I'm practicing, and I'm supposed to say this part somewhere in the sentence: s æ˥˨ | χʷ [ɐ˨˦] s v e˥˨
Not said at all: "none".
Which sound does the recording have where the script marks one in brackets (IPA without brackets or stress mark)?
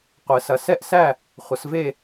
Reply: ɐ˨˦